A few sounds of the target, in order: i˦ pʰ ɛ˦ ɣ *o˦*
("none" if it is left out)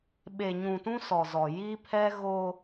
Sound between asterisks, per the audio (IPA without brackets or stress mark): o˦